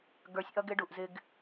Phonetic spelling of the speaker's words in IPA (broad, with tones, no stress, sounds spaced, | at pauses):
ɡ ə˞˨ sʲ ʔ ʌ˦ ɡ ɪ˦ ɖ u˨ ʔ z ɪ˦ ɡ